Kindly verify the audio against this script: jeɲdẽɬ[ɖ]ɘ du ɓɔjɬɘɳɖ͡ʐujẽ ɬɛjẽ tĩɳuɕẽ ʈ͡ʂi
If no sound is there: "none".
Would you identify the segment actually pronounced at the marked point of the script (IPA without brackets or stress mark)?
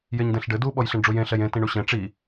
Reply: ɖ